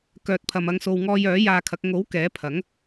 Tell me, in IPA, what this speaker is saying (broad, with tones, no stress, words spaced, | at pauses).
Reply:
kœː˨t̚pʰɐ˨mɐ˧ŋ so˨wŋɔː˧jœː˨˥ jaː˧kʰɐ˨˥k̚ ŋo˨˥w kɛː˨˥pʰɐ˨˥ŋ